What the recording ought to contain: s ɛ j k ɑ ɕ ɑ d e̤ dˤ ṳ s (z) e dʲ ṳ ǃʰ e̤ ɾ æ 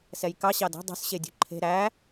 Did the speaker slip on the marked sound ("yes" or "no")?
yes